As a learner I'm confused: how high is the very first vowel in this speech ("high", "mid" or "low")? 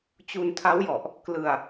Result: high